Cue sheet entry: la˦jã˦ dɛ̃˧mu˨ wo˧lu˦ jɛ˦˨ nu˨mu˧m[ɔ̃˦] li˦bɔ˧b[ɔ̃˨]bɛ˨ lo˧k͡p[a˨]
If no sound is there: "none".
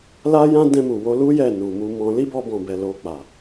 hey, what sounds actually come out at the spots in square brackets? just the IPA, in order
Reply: ɔ̃˧, ɔ̃˨, a˨

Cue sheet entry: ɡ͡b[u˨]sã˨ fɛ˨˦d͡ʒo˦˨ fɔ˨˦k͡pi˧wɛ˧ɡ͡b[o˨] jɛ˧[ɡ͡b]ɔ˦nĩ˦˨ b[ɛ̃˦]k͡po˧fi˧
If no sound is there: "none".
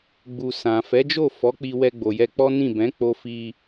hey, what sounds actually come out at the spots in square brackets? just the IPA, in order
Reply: u˨, o˨, k͡p, ɛ̃˨˦

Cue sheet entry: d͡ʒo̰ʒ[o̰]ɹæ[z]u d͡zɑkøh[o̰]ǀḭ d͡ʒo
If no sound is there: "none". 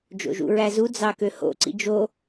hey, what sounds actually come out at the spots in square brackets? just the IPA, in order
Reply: ṵ, z, o̰

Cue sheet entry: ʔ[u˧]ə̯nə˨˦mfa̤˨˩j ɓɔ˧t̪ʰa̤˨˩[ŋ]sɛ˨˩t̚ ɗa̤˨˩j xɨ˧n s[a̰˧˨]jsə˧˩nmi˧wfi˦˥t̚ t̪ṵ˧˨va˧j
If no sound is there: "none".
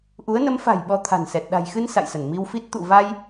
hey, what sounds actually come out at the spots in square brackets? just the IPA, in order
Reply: u˨˦, n, a̰˧˨

